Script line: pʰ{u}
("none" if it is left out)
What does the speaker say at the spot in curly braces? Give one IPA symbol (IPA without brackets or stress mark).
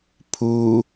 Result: u